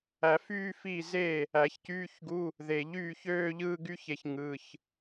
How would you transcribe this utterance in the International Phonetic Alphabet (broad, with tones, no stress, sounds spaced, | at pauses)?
æ˨˩˦ f yː˥˧ f iː˥˩ z e˥˩ | æ˨˩˦ ç c yː˧˥˧ ç ɡ u˧˥˧ | ð e˨˩ ʎ yː˥˩ ç øː˥˧ ʎ ɯ˥˧ ɡ y˥ ç e˥ ç ŋ ɯ˧˥˧ ç